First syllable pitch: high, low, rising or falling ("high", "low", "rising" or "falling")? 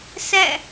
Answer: falling